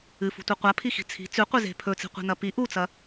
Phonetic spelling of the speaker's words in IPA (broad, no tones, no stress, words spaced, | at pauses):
ɨfṳtʷɨ qʷapʰixi̤ t͡sʰi̤ t͡sʉqʷize̤ pʰɵt͡si̤qʷi̤nɐ pi ʔut͡sɐ